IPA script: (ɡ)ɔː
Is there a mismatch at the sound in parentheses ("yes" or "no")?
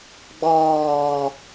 yes